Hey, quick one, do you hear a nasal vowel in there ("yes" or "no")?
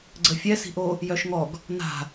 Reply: no